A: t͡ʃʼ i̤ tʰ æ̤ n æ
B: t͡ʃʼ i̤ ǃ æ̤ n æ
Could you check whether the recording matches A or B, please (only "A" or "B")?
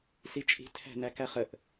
A